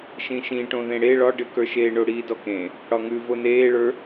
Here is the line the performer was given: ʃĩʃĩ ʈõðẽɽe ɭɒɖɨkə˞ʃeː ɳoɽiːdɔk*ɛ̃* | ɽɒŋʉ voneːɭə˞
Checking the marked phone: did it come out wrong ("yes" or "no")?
yes